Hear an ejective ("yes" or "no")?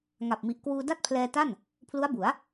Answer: no